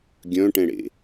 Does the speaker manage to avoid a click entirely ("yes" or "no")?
yes